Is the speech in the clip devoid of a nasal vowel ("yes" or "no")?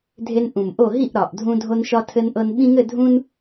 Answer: no